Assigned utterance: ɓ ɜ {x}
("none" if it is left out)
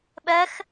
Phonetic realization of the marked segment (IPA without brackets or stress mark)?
x